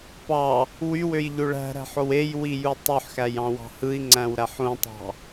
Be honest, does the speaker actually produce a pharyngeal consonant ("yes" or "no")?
yes